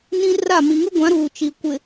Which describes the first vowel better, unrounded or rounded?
unrounded